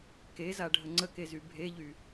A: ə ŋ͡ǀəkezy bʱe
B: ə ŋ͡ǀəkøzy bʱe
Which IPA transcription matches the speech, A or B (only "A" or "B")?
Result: A